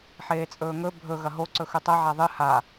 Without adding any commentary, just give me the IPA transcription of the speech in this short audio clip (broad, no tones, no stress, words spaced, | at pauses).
ħeːt͡sʼɵːŋɵ bʱɵ ɣɐɦo ǀɵxʉtˤɐ ʕaðˤɨ ha